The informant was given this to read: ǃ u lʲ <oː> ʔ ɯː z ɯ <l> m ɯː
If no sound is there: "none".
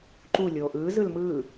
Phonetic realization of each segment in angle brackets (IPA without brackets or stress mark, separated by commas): oː, l